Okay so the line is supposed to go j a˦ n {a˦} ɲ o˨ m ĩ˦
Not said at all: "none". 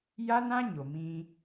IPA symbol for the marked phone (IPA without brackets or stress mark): ã˦